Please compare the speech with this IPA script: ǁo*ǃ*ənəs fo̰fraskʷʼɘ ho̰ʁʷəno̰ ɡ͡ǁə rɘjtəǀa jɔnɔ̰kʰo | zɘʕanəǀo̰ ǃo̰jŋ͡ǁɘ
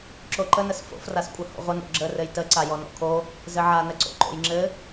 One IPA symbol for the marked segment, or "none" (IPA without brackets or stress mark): ǃ